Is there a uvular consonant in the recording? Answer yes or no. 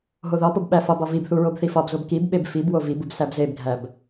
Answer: no